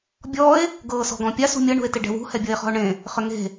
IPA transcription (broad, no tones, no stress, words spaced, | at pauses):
bʲɔe̯ | ɡɤːsɔ̤ɡɔ̃pʲas ṳmʲɤ ɳṳe̯tɪɖɛ̤wṳ hɛbʲɤe̯χɔ̤o̯ɳẽ | χʏŋe̤